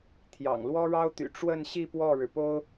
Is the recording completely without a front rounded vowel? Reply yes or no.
no